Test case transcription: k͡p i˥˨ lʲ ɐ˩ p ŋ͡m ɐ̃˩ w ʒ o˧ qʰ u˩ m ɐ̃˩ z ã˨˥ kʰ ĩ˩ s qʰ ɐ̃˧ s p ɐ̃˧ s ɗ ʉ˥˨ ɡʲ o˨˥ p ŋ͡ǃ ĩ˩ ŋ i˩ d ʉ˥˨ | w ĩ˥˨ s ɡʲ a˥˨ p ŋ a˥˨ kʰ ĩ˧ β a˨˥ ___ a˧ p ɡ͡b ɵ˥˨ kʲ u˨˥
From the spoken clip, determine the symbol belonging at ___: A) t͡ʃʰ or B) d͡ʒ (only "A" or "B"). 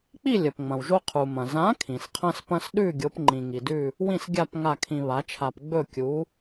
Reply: A